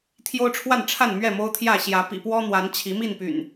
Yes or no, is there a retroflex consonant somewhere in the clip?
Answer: yes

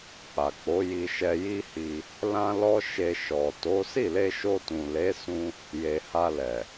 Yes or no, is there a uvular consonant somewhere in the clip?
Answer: no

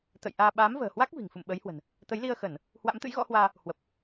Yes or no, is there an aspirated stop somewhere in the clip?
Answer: no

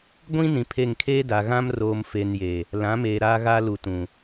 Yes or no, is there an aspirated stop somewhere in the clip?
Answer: yes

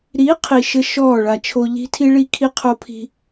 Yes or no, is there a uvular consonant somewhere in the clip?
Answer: yes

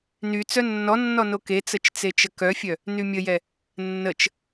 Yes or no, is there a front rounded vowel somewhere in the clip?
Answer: yes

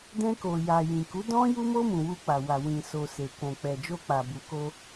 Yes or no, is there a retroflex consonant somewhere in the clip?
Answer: no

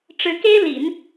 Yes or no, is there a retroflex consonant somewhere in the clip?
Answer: yes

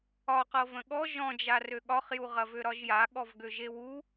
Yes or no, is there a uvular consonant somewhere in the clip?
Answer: yes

